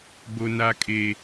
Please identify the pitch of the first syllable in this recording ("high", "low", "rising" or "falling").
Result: high